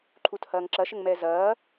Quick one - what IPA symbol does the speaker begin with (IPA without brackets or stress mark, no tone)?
ǃʰ